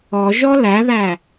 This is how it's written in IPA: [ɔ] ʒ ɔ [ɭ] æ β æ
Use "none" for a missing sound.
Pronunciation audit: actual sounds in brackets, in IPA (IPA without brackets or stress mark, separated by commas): ɔ, l